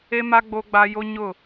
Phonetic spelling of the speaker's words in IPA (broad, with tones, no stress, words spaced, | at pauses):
e˦ma˦ ɡ͡bo˦ɡ͡ba˦ jo˦ɲʊ˦˨